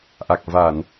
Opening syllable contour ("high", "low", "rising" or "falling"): low